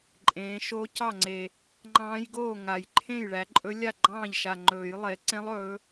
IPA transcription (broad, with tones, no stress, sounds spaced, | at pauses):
ǃʼ ẽː˨˦ ʃ oː˦˥ c ɑ˥˨ ŋ͡ǀ e˨˩ | ŋ͡ǃ ɑ̃ː˦˥ j ɡ oː˥˨ ŋ a˨˩ j ǃʰ ẽ˥˨ j ɭ æ˨˦ ǃʼ ɵ˦˥ lʲ a˥˨ ɡ͡ǃ ɑ̃ː˥˨ ʎ ʃ a˨˩ ŋ͡ǃ ɵː˨˩˦ j lˠ e˨˦ ǀ ẽ˦˥ lˠ ɵː˨˦